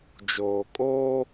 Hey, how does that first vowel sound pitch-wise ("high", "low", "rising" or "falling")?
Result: low